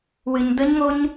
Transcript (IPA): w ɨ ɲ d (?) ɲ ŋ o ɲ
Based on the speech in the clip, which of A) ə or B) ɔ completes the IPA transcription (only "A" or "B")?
A